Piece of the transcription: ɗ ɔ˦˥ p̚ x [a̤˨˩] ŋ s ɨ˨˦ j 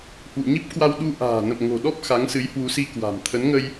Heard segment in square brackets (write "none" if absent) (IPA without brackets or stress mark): a˨˦